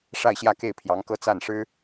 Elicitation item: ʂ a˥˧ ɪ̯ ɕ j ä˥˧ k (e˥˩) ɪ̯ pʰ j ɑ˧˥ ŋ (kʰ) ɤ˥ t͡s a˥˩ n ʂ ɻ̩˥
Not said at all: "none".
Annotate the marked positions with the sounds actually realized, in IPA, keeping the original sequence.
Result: e˥˩, k

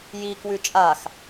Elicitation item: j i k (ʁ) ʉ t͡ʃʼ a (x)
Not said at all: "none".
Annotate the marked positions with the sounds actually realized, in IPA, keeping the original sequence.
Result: w, x

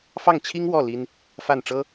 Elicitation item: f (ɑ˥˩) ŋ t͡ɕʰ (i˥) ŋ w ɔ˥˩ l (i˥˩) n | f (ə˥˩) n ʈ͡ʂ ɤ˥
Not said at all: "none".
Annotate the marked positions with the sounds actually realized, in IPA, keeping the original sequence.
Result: ɑ˥˩, i˥, i˥, a˥˩

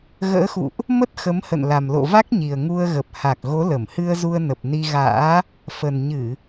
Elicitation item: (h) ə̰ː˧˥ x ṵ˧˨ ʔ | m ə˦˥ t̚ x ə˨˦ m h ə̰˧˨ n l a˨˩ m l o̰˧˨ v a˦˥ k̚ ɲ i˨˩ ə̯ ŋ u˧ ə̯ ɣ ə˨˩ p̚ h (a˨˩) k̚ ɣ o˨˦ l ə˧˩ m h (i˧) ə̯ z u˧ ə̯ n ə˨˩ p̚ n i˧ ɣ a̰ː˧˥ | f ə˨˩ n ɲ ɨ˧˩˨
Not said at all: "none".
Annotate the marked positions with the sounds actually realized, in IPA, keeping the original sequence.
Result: ɣ, a˨˩, ɨ˧

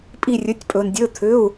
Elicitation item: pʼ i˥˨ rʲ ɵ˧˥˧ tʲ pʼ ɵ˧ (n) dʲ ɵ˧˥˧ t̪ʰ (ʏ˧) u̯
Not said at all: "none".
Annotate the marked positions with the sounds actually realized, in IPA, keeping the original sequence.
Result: n, ʏ˧˥˧

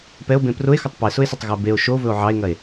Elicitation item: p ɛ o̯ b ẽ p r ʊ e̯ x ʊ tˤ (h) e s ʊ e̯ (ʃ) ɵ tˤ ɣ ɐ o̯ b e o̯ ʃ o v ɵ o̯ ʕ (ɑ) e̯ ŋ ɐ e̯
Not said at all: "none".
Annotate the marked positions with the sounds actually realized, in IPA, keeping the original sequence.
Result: p, s, ɑ

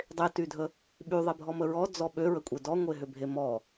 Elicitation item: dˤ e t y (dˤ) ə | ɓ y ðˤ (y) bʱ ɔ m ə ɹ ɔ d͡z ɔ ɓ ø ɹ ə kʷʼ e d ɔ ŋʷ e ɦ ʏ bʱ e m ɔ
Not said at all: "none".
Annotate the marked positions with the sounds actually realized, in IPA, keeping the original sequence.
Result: dʱ, e

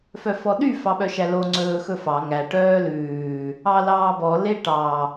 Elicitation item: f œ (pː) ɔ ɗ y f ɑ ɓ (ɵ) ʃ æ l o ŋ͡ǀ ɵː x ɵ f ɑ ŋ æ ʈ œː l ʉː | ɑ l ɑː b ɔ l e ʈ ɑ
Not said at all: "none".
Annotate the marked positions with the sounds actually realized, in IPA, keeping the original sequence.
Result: f, œ

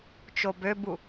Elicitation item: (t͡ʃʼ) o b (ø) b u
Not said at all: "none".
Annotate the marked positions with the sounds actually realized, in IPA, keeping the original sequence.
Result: t͡ʃ, ø

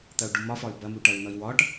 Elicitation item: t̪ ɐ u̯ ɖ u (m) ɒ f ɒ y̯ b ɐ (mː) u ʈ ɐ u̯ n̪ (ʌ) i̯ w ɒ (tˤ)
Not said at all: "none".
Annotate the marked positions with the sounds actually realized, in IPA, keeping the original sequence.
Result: m, m, ʌ, ʈ

